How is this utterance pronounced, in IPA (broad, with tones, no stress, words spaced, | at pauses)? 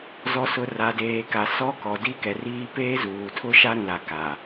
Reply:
zɔ˨sʊ˨ ra˨deː˨ka˨ sɔ˦kɔ˨di˦ kɛ˨riː˦ peː˦zuː˨tʰʊ˦ ʃa˦ɾũ˨la˨ ka˨